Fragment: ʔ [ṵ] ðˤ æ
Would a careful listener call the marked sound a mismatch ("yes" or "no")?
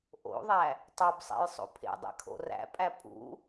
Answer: yes